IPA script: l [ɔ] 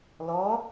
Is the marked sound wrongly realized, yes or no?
no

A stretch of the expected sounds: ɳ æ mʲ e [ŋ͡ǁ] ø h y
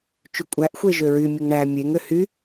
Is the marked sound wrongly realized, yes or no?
yes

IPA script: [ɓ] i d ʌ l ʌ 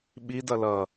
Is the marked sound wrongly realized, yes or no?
no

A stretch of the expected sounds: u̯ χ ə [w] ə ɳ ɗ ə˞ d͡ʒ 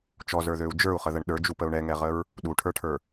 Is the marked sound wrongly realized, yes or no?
yes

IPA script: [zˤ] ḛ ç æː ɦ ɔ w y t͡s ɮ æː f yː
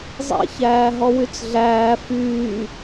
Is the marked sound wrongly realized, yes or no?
no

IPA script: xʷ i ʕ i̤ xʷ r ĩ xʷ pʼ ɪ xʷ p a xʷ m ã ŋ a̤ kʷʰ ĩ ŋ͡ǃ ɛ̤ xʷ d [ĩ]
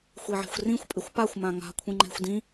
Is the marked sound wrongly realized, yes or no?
no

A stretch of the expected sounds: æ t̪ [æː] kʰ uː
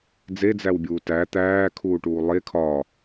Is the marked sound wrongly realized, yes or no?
no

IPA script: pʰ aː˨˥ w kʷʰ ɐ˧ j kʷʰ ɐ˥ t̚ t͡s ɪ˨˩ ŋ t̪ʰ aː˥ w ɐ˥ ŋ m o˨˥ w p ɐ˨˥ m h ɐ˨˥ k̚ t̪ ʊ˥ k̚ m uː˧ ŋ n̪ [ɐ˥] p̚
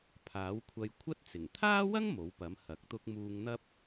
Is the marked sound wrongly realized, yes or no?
no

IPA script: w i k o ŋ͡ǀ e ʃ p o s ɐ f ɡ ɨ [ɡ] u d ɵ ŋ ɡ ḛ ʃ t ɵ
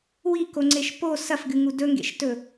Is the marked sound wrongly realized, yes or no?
yes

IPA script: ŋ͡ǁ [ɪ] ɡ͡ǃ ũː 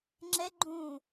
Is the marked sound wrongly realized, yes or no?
yes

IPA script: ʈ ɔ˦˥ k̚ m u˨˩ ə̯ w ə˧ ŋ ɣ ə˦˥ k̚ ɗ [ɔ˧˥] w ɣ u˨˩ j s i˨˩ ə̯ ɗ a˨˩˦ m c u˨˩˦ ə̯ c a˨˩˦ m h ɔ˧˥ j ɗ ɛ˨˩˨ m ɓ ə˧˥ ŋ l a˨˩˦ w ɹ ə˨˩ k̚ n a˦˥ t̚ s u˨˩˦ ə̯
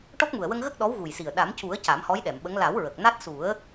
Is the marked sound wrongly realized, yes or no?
no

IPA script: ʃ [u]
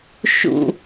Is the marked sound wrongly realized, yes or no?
yes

